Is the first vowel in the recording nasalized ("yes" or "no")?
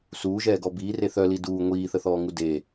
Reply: no